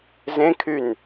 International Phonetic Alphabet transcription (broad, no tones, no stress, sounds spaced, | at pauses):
z ẽ kʰ y n